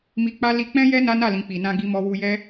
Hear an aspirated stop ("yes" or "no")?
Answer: no